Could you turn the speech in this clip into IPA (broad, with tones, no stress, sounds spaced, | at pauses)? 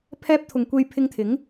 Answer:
pʰ ɛː˥ p̚ t̪ʰ ʊ˨ ŋ kʷ e˧ j pʰ ɪ˧ ŋ t̪ʰ ɪ˨˥ ŋ